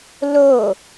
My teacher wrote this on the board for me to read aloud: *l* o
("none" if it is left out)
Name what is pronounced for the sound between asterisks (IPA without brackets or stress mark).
l